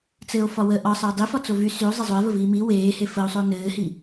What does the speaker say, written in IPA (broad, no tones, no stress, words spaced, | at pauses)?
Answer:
t͡sɘo̯fɒ wə ʔɒ sˤɘːdˤi fɒt͡sovy syo̯ zˤezˤoe̯və viːmi weːhe fəo̯sˤo nɘːhi